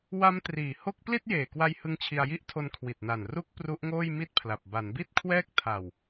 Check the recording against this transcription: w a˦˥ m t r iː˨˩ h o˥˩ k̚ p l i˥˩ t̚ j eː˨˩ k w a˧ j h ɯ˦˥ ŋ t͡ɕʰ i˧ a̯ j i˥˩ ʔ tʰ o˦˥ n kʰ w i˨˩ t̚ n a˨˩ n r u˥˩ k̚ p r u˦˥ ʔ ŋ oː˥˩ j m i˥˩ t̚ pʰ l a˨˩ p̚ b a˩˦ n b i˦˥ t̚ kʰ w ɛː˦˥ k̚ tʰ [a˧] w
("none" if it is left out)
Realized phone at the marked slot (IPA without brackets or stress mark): a˨˩